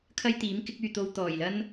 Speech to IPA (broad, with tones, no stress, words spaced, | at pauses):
kʰɐ˥jt̪iː˨˥m kɪ˨˥k̚yː˨ t̪o˧w t̪ɔː˨˩jlɐ˥n